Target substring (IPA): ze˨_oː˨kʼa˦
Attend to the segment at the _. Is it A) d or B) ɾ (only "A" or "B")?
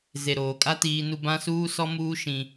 B